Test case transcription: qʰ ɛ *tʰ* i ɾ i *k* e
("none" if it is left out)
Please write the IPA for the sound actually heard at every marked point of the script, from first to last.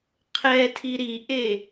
tʰ, ʔ

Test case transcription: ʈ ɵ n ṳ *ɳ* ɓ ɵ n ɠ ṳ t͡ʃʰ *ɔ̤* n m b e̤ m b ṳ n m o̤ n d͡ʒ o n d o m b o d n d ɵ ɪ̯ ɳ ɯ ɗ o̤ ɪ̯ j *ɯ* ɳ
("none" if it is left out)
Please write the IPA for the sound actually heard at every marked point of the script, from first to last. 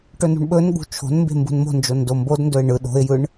ɳ, o̤, ɯ

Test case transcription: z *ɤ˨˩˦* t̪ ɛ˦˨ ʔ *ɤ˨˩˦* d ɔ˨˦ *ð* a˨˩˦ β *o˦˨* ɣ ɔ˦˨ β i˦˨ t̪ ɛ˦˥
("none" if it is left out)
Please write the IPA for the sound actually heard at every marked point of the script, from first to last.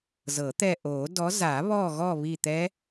ɤ˨˩˦, o˨˩˦, z, ɔ˦˨

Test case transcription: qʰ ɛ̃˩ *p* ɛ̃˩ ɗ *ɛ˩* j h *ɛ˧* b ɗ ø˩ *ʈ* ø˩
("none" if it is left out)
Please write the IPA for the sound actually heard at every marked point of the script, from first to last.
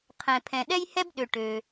pʰ, ɛ˧, ɛ˧, ʈ

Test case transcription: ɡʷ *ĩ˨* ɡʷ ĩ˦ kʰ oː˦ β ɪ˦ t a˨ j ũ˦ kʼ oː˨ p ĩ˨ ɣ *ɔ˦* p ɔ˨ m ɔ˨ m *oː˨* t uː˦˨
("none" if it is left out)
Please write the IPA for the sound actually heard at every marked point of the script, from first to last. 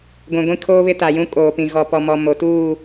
ĩ˨, ɔ˨, o˨

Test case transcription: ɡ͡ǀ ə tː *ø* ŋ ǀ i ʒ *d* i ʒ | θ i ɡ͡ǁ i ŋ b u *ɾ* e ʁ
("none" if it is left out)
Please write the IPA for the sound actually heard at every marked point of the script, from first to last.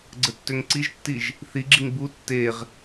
ø, tː, tː

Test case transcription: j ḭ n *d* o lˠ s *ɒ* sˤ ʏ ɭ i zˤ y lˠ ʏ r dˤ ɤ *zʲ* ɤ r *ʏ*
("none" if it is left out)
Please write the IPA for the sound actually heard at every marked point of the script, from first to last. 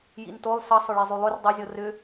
t, ʌ, zʲ, ʏ

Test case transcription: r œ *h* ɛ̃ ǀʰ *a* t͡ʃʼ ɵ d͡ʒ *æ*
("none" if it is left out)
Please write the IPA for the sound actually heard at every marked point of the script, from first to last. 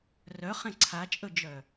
χ, a, œ

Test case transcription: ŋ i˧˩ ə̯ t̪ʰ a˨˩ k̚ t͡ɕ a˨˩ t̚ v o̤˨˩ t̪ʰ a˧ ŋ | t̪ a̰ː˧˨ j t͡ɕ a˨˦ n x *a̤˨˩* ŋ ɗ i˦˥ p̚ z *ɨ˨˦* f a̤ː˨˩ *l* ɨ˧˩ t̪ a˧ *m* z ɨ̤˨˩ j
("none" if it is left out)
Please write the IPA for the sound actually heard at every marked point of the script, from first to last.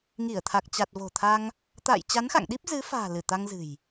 a̰˧˨, ɨ˨˦, l, ŋ

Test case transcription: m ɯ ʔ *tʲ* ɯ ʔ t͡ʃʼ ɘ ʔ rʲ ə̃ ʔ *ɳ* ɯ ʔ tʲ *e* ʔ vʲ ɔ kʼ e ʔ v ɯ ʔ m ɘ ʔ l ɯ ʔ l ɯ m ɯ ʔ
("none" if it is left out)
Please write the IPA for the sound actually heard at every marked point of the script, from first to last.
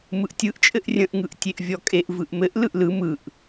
tʲ, ŋ, e

